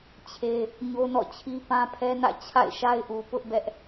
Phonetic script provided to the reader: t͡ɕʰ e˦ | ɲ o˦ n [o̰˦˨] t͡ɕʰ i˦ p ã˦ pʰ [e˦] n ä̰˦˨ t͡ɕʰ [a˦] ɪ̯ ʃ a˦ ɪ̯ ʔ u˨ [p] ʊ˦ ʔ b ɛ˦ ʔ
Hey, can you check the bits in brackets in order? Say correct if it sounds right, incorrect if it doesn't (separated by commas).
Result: incorrect, incorrect, incorrect, correct